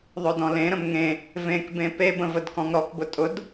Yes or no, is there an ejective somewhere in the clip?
yes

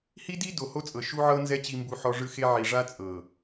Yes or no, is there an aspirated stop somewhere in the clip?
no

